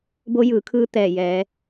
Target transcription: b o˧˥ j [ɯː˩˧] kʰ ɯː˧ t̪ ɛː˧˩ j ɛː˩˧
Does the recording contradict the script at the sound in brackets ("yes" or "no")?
no